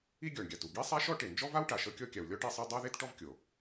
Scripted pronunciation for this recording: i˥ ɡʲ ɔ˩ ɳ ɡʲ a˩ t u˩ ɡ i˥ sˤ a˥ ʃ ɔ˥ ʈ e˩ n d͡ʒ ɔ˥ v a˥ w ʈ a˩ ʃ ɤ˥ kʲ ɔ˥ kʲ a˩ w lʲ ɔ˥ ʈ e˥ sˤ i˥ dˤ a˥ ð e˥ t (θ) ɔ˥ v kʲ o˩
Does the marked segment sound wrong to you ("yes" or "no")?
yes